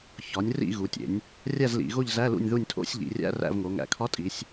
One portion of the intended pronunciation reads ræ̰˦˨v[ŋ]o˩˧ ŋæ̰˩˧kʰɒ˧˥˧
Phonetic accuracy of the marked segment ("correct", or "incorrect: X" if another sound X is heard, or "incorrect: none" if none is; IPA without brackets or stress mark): correct